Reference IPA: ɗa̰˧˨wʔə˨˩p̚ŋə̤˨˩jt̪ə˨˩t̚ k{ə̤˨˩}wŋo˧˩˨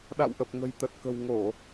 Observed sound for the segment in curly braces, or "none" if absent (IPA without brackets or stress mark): ə̤˨˩